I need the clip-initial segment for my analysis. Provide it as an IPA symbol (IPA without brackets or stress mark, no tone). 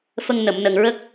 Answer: f